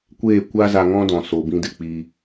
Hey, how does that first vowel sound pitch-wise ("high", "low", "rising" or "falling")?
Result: falling